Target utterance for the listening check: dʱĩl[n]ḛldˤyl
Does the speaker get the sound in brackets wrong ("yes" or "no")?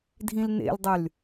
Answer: no